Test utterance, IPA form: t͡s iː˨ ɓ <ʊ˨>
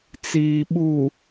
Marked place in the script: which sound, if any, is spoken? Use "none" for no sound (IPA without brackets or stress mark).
u˨